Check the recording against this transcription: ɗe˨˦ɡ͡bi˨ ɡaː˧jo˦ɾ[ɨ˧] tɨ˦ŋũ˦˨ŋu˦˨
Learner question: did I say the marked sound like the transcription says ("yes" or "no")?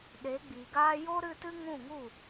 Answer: yes